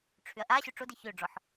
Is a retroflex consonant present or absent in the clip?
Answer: present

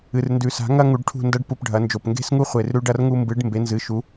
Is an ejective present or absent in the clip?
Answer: absent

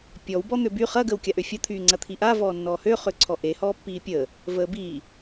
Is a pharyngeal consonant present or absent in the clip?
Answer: absent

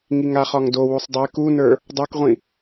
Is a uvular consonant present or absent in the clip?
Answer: present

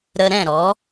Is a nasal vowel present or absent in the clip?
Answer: present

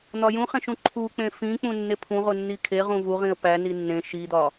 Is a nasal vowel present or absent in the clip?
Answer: present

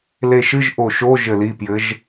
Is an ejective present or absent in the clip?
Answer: absent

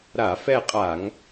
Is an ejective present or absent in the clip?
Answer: present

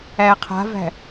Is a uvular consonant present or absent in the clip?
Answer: present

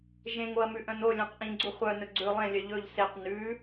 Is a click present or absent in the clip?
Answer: present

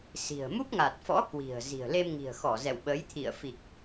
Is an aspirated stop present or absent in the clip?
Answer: present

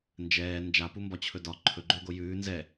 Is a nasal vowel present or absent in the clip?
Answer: absent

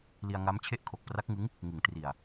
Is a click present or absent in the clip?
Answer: absent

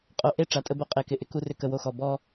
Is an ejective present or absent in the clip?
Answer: present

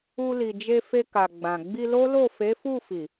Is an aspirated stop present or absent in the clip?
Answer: absent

